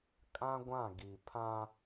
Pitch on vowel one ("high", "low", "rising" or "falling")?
high